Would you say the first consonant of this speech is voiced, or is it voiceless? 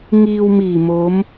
voiced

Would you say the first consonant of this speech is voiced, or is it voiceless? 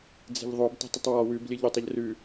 voiced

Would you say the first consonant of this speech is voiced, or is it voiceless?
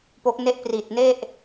voiceless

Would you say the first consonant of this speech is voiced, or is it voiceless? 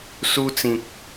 voiceless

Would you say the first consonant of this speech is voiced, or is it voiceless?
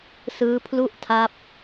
voiceless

